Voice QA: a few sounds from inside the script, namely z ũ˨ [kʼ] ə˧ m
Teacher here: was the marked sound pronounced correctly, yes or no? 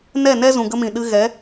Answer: no